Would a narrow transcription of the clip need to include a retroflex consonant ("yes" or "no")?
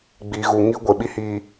no